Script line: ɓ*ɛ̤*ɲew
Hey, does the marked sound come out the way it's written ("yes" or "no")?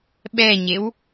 no